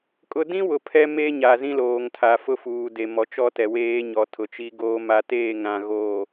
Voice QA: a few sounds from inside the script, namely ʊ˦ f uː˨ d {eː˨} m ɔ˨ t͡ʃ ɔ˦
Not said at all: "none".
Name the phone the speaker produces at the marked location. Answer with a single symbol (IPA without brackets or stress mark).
e˨